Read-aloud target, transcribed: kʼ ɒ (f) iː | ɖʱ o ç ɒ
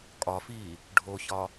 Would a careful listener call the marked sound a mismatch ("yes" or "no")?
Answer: no